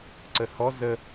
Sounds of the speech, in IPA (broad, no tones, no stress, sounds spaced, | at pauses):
ǀ ə h ɔ z ə